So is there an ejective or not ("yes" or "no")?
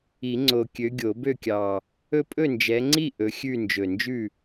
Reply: yes